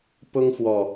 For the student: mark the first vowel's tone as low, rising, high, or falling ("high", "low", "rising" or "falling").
high